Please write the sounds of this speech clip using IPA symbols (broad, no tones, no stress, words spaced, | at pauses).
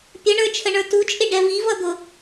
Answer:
pʲəɳə˞t͡ʃʰəɳə˞ tut͡ʃʼɪɖɛ vivʌd̪ʊ